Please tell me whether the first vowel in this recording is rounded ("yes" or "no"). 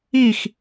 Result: no